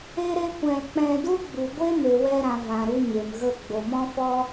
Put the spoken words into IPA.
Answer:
e˦ ɾ e˦ kʷ ɛ̃˧ l k͡p ɛ̃˧ d u˦ ɡ͡b u˨ ɡʷ e˦ m e˨ w ɛ˧ ɾ ã˨ v ã˨ ɾ u˧ ɲ e˨ m ɣ ə˦˨ ɡ͡b o˨ m ɔ̃˦ f ɔ˦

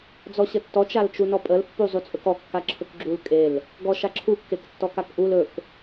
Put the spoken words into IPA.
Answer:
d͡z ɔ ɕ ə tː ɔ t͡ʃ a l t͡ʃ u n ɔ pʼ ə l pː u zˤ u t͡sʼ ɵ k ɔ kː a ǁʰ ɵ k ɡ͡ǁ u l kʼ e l | ɡ ɔ ʃ a ǁʰ u kː e k tː ɔ k a k ʔ u l ɵ k

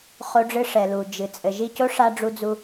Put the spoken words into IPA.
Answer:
χ o˧ ɖ͡ʐ ɨ˧ ʂ ɛ˨ l u˨ d͡ʒ ɨ˨ t͡sʼ ɘ˨ ʒ i˦˨ c o˦ ʂ a˧ ɖ͡ʐ u˧ d͡z u˧

